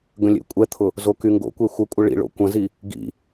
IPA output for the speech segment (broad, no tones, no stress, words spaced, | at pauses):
ɡə̃lʲḛkʷʼɛt̪ʰʊ | zokyŋɡo̰kʷe xʷəkʷʼɐ ɭḭɭo̰ kʷɐ̃zi | ɡḭ